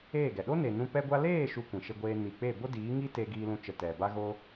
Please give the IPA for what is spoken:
eː˦˨ ɡ ɛ˨ ɗ o˦ n e˨ n ũ˧ p ɛ˧ ɡʷ a˧ l eː˦˨ ʃ u˧ kʷ ĩ˨ ʃ e˧ ɡʷ eː˧ n i˨ k͡p e˦˨ b o˦ d iː˨˦ ŋ i˦ t e˧ ɡ iː˧ l ũ˧ t͡ʃ ə˨ t ɛ˨ b a˦ ɣ o˦

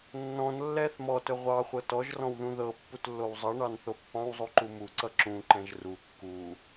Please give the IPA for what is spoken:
nː ɔ̃ n lː ɛ θ m ɔ t ɵ ʁʷ ɑ χʷ ɤ t ɔ ʒ r ɔ̃ w ð ũ ð ɤ pː u t lː o w zˤ ʌ ɳ ɑ n θ o pː ɑ̃ w zˤ u ǃ u m u ǀ ʌ ǁ ũ ǃ ɛ̃ ʒ r u kː u

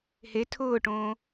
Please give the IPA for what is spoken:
h e tʰ ʊː ʈ õː

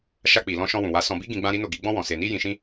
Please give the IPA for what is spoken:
ʃ a˧ k͡p i˨ l ɔ̃˧ ʃ ɔ̃˧ w ũ˨ w a˨˦ s ɔ̃˧ b i˦ ɡ ĩ˧ ɡ͡b ã˦ ɾ i˦ n o˦˨ ɡ i˨˦ ɡ͡b ɔ̃˦ w ɔ̃˧ s e˧ n i˦ j ĩ˧ ʃ ĩ˦

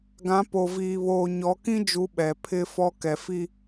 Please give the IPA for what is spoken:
ɡ ã˨˦ p o˨ v iː˨ β oː˨ ɲ ɔ˨˦ k ĩ˦ d͡ʒ u˨˦ ɓ ɛ˨ pʰ ɪ˦ f ɔ˦ k ɛ˨ f i˦

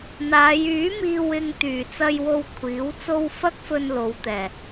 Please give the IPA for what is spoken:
n̪ aː˨˧ j yː˨˥ m iː˧ w ɪ˧ ŋ t̪ yː˨˩ t͡s ɐ˧ j w o˧ w kʷʰ iː˨˥ w t͡s o˥ w f ɐ˥ k̚ f ɵ˧ n l o˨˧ w t̪ ɛː˨˩

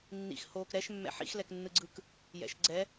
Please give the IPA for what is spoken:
nː ḭ x h oː k ɾ ɛ ʃ mː ɛ̰ ħ ḭ x l ɛ k nː ɯ ɡ͡ǀ ɯ k | j ɛ̰ ʃ ɡ͡ǀ ɛ

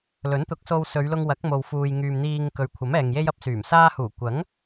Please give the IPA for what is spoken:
l ɵ˨˥ n t̪ ʊ˨˥ k̚ s o˧ w s ɵ˨˧ ɥ l ʊ˧ ŋ w ɐ˨˥ k̚ m o˨ w f uː˨ j ŋ yː˨ m n̪ iː˨ ŋ k ɵ˨˧ ɥ kʷʰ ɐ˨˥ m ɛː˨ ŋ j e˥ j ɐ˥ p̚ s yː˨˩ m s aː˧ h uː˨˩ kʷ ɐ˨˥ ŋ

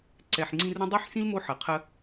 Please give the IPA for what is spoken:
ǀ ɛ˨ ħ ŋ͡ǀ ĩ˦ r ɾ ɐ̃˥ dˤ i˥ ħ s ĩ˥ l m o˥ ħ ɐ˩ qʰ ə˦

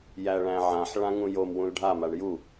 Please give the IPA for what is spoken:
j æ ɭ æ̃ ʕ ã ħ ɭ ã ŋ ũ j o m w ũ l ɖʱ a m a ɳ j u

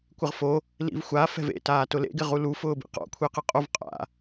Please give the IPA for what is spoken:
kʷ ɪ ʁ f o | l ḭ v xʷ a f ɛ̤ v ḛ t aː t ʊ l ḛ ɡ ɪ ʁ u l u f ʊː b ḭ q ɔ̰ kʷʰ e q ɪ qʼ o v qʼ a̰

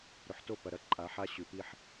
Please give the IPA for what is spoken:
ɾ ɵ˨ ħ t o˦˨ p ɐ˨ ɾ ɐ˦ ǃʼ a˨˦ ħ a˦ ɕ ʉ˨ p i˦ ħ

